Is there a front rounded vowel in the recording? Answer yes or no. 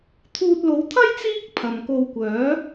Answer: yes